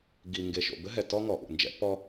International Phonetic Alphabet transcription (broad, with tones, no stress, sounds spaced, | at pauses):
ɡ i˨ ŋ ɡ e˨ ʃ o̰˨ b ɘ˦ ɦ ɛ˨ t ɔ˦ ŋ ɔ˨ ʔ ṵ˨ n d͡ʒ ɛ̰˦ p ɔ˦